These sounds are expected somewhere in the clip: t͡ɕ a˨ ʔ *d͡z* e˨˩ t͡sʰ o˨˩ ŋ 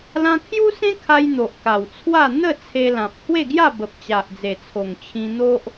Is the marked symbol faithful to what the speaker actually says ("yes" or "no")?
yes